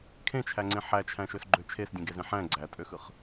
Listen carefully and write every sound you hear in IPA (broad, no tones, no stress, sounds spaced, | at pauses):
kʰ ẽ t͡ʃʰ æ ŋ͡ǀ ẽ ħ æ t͡ʃʰ æ̃ ʃ ø s ɡ͡ǃ ø t͡ʃʰ e s dʲ ẽ ɡ e z ẽ ħ æ̃ ɡ͡ǀ æ tʼ ø x ɯ χ